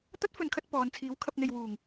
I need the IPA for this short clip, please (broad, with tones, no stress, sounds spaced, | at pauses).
t̪ ɐ˥ t̚ f ɵ˨˧ n kʰ ɐ˧ t̚ p ɔː˨˧ n t͡sʰ iː˨˥ w kʰ ɐ˧ p̚ n̪ e˨ j w uː˨˩ ŋ